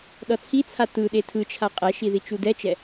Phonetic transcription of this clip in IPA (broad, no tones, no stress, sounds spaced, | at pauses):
ɗ ʌ t͡sʰ i t͡sʰ a t ɯ ɗ e tʰ ɯ t͡ʃʰ a qʼ ɛ ʃ i ð i t͡ʃ u d ɛ t͡ʃ ɛ